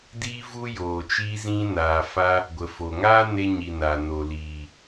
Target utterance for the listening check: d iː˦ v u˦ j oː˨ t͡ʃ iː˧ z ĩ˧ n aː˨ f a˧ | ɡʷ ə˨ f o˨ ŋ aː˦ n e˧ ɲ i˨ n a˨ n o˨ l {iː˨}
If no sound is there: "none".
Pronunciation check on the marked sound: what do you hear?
iː˨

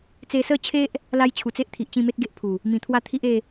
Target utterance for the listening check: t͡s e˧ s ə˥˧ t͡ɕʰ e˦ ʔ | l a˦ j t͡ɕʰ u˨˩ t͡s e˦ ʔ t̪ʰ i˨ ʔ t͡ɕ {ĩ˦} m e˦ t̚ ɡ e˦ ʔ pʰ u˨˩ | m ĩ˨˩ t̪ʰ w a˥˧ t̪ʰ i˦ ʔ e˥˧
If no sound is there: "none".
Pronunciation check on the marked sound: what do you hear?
ĩ˥˧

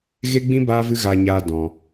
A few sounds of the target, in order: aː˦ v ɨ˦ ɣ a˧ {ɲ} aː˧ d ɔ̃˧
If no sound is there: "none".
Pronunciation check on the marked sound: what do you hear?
ɲ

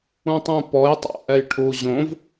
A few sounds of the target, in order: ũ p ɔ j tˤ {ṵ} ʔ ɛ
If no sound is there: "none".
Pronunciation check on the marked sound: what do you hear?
ṵ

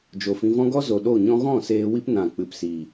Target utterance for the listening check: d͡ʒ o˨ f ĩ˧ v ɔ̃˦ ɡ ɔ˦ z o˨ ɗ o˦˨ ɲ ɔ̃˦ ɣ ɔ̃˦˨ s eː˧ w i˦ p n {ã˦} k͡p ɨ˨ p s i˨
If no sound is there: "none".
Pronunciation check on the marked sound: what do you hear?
ã˨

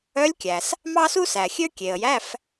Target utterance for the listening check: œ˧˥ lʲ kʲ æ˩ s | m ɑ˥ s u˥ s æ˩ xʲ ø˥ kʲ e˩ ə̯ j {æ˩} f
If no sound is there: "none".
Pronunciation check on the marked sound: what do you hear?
æ˧˥˧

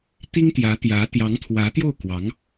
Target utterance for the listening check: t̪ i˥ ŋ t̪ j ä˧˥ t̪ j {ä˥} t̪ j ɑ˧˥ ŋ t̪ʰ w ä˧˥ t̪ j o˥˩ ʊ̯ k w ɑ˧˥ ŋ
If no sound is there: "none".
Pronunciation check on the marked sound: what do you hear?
ä˧˥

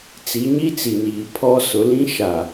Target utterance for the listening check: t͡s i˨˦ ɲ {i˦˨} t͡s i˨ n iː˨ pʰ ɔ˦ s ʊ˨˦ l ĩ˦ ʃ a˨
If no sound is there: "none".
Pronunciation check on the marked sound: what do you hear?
i˦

